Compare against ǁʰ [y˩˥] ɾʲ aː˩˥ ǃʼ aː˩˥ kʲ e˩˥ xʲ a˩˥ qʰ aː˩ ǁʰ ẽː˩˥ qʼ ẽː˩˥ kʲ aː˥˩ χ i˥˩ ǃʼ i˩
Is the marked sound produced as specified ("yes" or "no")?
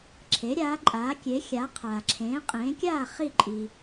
no